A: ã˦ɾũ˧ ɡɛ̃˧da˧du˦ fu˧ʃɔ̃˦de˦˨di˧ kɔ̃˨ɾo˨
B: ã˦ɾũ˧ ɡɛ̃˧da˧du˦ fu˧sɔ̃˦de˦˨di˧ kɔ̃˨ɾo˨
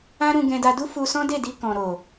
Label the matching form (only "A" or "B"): B